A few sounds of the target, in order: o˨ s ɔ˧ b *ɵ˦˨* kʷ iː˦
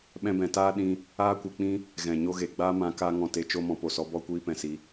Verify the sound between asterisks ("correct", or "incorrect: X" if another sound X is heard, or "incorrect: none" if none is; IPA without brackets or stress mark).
incorrect: ɔ˦˨